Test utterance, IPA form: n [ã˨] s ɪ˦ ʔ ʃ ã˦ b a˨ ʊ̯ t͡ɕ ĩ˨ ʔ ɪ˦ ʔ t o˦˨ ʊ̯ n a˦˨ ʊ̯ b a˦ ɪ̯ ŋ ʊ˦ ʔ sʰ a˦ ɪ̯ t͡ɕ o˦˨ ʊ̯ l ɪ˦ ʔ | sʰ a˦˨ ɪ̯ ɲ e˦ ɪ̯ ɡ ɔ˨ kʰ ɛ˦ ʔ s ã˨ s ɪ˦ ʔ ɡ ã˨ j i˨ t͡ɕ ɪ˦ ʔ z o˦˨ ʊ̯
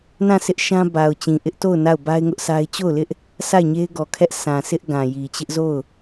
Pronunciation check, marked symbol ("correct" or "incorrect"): incorrect